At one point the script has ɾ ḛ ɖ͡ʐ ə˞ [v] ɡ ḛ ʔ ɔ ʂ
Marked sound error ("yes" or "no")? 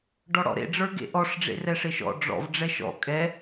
yes